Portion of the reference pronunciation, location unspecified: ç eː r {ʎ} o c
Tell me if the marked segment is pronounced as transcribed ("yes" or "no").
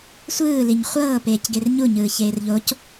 yes